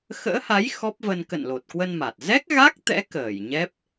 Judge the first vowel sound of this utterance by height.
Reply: mid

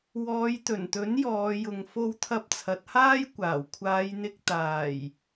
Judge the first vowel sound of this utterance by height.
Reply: mid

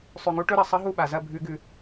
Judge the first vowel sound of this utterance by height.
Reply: high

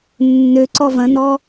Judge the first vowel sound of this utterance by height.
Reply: mid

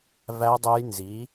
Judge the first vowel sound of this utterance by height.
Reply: low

